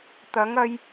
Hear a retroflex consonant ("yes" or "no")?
no